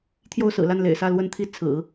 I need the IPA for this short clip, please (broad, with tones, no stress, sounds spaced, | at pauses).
t̪ʰ j o˥˩ ʊ̯ s ɹ̩˨˩ l a˥˩ n l ḛ˨˩ ɪ̯ s ä˥˩ l w ə˥ n t̪ʰ i˥ t͡sʰ ɹ̩˨˩˦